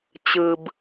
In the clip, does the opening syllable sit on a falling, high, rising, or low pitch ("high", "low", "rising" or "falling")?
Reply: high